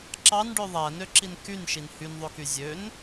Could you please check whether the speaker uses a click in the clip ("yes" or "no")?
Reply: yes